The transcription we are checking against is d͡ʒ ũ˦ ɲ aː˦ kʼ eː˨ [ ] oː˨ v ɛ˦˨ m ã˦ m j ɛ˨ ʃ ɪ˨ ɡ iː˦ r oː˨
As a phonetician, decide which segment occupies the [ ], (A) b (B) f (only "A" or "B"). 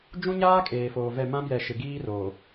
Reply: B